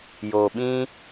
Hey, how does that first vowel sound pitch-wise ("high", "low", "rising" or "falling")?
low